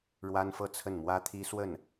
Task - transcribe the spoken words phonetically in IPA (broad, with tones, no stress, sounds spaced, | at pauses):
ɻ w a˥ n f ɤ˥˧ t͡sʰ ə˥˩ n m w ä˥ t̪ʰ i˥ s w ə˥˩ n